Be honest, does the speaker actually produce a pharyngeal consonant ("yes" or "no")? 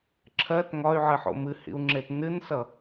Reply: yes